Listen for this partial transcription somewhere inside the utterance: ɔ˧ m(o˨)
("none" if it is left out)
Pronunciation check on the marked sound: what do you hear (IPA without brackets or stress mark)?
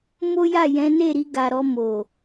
o˨